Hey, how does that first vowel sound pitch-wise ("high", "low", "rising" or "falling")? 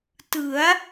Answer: rising